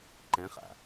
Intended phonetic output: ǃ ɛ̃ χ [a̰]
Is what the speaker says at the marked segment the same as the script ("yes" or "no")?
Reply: yes